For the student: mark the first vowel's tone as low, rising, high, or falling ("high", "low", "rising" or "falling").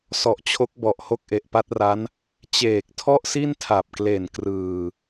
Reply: low